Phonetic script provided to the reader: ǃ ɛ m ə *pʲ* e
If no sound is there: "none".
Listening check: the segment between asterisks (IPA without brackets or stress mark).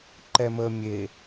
mʲ